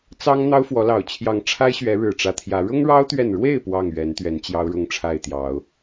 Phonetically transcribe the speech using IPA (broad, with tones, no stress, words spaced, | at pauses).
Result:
t͡sɑ˦ŋ n̪ɑ˦ʊ̯fwɔ˨˦lɑ˨˩ʊ̯ t͡ɕʰjɑ˨˦ŋʈ͡ʂʰa˦ɪ̯ɕɥɛ˨˦ ɻɻ̩˨˩ʈ͡ʂä˨˦t̪ʰjä˨˦ ɻʊ˦ŋɻɑ˦ʊ̯t̪ɥɛ˨nɻwe˥˨ɪ̯ pwɑ˥˨ŋɥɛ˨˦nt̪ɥɛ˨˦n t͡ɕjɑ˦ʊ̯ɻʊ˥˨ŋʈ͡ʂʰa˥˨ɪ̯t̪jɑ˨˦ʊ̯